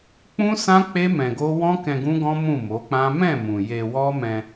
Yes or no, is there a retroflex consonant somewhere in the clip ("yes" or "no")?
no